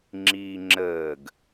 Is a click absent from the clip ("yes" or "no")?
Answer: no